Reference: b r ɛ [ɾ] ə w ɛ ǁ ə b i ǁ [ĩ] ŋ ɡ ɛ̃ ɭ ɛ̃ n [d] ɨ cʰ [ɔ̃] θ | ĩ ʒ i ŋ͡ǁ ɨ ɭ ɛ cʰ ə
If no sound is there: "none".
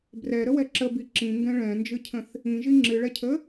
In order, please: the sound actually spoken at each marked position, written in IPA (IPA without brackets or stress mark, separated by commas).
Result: ɾ, ĩ, d͡ʒ, ə̃